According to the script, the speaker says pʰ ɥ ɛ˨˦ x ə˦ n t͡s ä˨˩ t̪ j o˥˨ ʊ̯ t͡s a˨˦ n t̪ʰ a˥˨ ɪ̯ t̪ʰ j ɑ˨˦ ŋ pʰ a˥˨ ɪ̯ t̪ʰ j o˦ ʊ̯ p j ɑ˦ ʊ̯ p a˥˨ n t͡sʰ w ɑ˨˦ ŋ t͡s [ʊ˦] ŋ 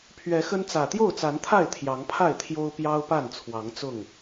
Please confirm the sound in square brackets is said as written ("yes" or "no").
no